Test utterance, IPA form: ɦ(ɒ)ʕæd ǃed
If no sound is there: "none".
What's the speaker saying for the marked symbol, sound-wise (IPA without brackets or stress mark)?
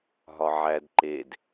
ɒ